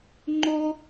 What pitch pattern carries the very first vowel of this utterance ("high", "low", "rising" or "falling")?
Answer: high